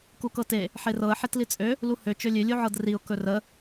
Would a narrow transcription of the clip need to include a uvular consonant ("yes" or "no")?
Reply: no